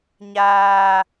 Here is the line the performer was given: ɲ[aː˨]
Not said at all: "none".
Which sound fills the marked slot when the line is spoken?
aː˦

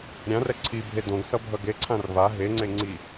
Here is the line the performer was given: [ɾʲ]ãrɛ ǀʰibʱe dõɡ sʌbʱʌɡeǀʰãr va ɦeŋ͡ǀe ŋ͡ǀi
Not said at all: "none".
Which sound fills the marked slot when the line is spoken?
ɾʲ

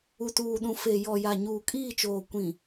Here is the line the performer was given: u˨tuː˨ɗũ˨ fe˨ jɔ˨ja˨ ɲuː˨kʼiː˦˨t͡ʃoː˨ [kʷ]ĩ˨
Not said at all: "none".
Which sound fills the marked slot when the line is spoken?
kʷ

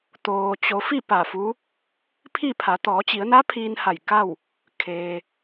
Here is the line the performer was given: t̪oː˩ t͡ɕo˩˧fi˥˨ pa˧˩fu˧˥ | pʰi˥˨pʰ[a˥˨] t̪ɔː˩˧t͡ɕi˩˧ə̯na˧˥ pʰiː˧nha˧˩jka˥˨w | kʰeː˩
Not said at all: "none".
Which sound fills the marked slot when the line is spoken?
a˩˧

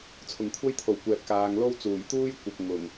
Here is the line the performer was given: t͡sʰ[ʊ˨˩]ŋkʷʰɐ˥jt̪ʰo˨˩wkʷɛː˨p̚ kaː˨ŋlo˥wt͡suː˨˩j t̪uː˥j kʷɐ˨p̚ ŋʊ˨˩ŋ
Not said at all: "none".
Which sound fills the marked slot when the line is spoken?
ʊ˨˩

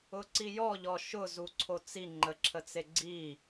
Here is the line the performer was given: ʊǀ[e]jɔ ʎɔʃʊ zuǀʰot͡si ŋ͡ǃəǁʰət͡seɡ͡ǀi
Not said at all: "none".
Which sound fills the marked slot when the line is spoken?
i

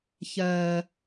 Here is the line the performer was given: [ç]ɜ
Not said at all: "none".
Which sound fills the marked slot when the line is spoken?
ç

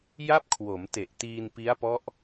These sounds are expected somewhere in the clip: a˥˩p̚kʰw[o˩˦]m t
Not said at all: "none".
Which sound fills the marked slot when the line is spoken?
o˩˦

